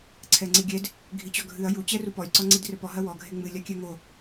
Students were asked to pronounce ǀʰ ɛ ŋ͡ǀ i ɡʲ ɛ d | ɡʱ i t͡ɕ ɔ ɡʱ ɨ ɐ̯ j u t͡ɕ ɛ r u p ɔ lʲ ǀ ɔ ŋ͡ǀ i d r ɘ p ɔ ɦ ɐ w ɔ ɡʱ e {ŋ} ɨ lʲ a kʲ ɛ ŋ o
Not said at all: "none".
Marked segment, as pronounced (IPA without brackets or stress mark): ŋ͡m